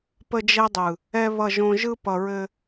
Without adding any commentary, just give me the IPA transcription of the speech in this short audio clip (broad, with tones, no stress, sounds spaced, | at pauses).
p ə˦ d͡ʒ ɛ˦ dˤ ɯ˨ | ɛ˦ β ʌ˦˨ ʒ õ˦ ʒ ɯ˦ p ʌ˨ ɹ ɘ˦